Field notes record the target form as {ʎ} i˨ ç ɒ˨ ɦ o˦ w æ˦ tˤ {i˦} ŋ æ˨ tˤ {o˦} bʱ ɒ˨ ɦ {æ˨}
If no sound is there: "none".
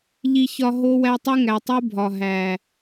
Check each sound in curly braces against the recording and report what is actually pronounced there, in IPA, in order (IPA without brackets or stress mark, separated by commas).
ʎ, i˦, u˦, æ˨